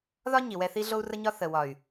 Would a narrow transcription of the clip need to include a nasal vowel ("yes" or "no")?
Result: no